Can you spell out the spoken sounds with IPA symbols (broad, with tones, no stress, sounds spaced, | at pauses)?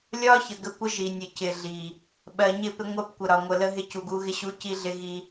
lʲ ɒ˦ ç ə˨ ɡ ə˦ kʷ ə˦ ʒ i˨ nʲ ə˨ c ɪ˨ ɮ i˨ | ɓ ɜ˨ ɲ ɪ˦˨ p ɪ˦ ŋʷ ɜ˦ p kʷ ə˨ ɾ ɒ˨ ŋʷ ə˨ l ə˦ ɦ ɪ˦ c u˨ ɡ u˦ ɣ ɪ˦ ɕ u˦ c i˦ ɮ ɪ˦ ɣ i˦